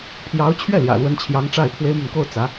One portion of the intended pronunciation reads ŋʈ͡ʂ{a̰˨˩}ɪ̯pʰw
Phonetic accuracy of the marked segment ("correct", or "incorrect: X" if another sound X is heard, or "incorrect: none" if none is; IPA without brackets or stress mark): incorrect: a˥˩